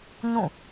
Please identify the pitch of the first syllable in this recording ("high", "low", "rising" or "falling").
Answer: falling